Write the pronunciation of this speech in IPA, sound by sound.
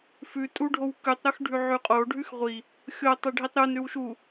fʉ tʼuɖʱowkʉtˤɾox ɖʱʉʕʉqʼo ɖʱʉxʁʷi | xʲo tˤeɖʱitˤɾun ɾʉwʃu

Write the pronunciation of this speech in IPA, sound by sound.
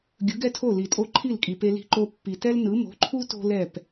ɡʲɯ˩˥ɡɛ˥tʰo˥˩ li˩tʼo˧ ǃʰi˥˩lkʼi˩pe˧ li̤˧ǃo˧pːi˩ tɛ˥lnɯ˩˥ mo̤˩˥ǃʰu˥ to̤˥lɛ˥˩p

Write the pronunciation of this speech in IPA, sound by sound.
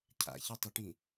cʰa̰ çitˤɪʈĩ

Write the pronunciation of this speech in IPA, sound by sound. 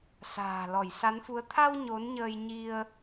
sa̤ː˨˩lɔ˧˩jsa˨˦nfu˨˦ə̯ t̪ʰa˧w ɲo˨˦nɲəː˧j ɲi˧ə̯

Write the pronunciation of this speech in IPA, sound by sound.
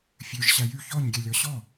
fʲøʒ ɕæjy çɔɲɡʲɛ lʲɔɕɔ

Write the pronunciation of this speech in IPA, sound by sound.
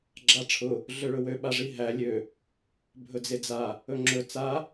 ɡ͡ǁaʈ͡ʂʰʊ | ɮøɭɵwø ɓaʐiɦæ lʲø | bʱɵd͡zed͡za | ɵŋ͡ǁɵ t͡sa

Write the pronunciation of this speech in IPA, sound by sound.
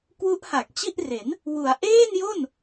kwu˦˥ʔha˨˩k̚t͡ɕi˥˩ʔre˩˦n | wu˩˦a̯ʔeː˥˩njo˥˩n

